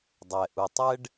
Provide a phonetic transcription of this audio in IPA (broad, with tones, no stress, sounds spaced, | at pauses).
dˤ ɛ˩ ʔ u˩ tˤ ɛ˥ ɖ